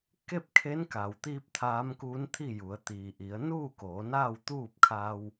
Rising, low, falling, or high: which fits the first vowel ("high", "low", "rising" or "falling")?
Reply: falling